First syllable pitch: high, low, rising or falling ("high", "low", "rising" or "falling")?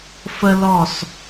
high